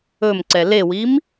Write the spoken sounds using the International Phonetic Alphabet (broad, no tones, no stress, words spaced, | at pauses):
ɵmǀɛ lewim